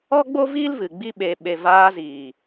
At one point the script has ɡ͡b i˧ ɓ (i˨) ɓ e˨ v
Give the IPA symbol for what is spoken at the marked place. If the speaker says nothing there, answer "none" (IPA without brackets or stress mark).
e˨